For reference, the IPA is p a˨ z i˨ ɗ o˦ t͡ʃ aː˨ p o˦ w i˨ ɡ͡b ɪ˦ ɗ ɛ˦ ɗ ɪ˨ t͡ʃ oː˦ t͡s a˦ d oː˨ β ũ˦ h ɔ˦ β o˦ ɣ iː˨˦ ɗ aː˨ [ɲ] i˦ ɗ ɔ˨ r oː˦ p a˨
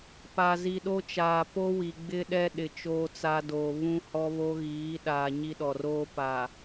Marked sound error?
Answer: no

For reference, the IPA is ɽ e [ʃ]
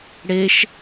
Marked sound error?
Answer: no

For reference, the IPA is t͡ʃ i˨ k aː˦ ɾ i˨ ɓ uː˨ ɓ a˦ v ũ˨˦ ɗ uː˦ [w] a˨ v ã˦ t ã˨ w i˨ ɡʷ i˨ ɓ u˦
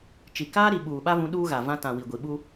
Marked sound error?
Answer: yes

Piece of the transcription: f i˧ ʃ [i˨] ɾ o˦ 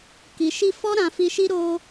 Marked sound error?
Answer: yes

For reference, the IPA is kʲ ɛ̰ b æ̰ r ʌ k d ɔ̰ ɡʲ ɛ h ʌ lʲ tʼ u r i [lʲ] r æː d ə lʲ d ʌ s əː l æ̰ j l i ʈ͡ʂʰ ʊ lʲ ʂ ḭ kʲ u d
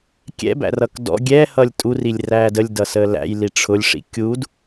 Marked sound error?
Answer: no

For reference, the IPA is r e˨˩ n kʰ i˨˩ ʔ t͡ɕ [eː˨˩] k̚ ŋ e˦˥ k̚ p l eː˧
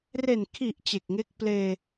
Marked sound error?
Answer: yes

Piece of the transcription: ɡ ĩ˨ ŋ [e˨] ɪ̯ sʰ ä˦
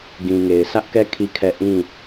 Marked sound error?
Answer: no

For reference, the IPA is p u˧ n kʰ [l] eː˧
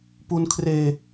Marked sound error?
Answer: yes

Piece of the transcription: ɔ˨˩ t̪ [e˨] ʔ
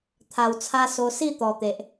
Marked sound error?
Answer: no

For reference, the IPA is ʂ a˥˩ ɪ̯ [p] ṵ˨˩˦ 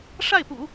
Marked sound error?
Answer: no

